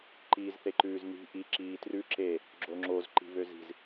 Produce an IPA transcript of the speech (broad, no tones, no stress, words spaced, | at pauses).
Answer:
ǃiːzθeǃʉːzni̤ ʔi ǁiːtrʉ ǁe | ɡ͡ǁoŋ͡ǁoz ǃi̤βøzi̤z